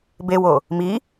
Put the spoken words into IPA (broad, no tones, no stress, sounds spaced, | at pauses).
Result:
b e w o | m i